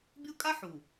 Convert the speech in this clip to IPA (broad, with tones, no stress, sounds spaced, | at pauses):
bʲ o˦ kʼ a˦ ħ u˨